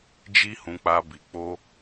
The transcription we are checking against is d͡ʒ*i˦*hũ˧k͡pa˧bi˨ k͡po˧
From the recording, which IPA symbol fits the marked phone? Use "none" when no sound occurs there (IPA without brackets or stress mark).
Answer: i˦